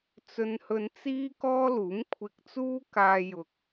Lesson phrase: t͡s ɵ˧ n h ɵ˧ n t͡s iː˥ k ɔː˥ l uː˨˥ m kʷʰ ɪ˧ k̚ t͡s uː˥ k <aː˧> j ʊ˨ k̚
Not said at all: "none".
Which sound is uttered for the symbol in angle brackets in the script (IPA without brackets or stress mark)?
aː˧